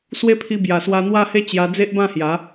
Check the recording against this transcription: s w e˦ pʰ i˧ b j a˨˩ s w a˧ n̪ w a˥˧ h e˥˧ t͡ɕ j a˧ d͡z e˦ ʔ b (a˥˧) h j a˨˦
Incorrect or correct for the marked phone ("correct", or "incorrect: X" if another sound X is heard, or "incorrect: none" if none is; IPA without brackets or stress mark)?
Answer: incorrect: ã˥˧